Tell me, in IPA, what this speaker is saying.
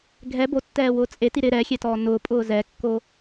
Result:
ɡʱ ɛ b o tː ɛː w ʊː t͡sʼ e t i ɾ ɪ ɾ ɛ xʲ ɛ t ɔː n ʊː pʼ ʊː z ɛ kː o

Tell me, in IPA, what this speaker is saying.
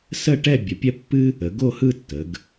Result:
s ə˥˧ ʈ ɛ˥˧ bʲ ə˩˧ pʲ ɛ˥ pː ɨ˥ | ə˩˧ ɡ o˥˧ h ɯ˥˧ tː ə˩˧ ɡ

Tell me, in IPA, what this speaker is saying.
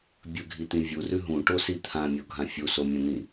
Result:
bʲ ɵ ɡʱ i t̪ ĩ vʲ u r ʉ ɦ ũ ʈ o s i t̪ʰ ã mʲ o ɡʱ ã fʲ u s o mʲ ɐ̃ n̪ ĩ

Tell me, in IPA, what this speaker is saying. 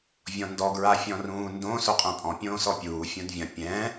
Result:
vʲ ɔ̃ n d ɔ ɡ ɹ a fʲ ɔ̃ r ũː n d õ s o qʼ ɛ̃ pʼ ɔ̃ pʲ õː s ɔ pʲ uː fʲ ũ d vʲ ɐ̃ pʲ ɛ̃

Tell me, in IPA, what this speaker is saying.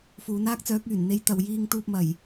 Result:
f uː˨˧ n aː˥ k̚ t͡s œː˨˥ k̚ yː˨˩ n n̪ e˧ j t̪ ɐ˨ w j iː˧ ŋ t̪ uː˧ p̚ m ɐ˨˩ j

